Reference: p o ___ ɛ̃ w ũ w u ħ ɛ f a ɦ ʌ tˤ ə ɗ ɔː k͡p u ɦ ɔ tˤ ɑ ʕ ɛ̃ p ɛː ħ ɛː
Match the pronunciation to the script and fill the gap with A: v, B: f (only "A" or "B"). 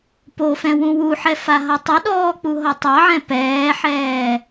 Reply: B